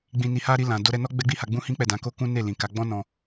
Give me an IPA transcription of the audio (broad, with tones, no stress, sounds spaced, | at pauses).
ɡ͡b ĩ˧ n i˧ h a˦ ɾ i˧ l ã˨ d o˧ ɾ ɛ˧ n ɔ˦ ɡ͡b ɛ˦ ɡ͡b i˦ h a˧ ɡ͡b ũ˦ h ĩ˦ k͡p ɛ˦˨ d ã˨˦ k o˦ k ũ˦ n e˦˨ l ĩ˨ k a˨˦ ɡ͡b ɔ̃˦ n ɔ̃˧